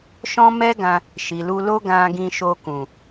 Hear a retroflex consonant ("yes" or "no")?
no